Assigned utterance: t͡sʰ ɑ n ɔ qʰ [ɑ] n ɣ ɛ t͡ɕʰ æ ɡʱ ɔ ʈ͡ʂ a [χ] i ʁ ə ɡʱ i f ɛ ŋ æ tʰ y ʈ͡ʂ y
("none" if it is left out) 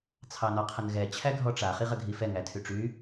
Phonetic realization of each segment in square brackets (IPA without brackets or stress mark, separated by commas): ə, χ